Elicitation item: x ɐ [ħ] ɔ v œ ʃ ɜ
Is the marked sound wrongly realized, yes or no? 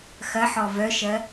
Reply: no